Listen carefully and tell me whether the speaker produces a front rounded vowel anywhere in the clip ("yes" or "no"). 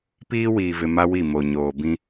no